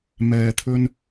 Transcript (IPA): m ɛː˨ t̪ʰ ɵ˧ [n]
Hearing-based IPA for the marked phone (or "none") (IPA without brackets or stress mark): n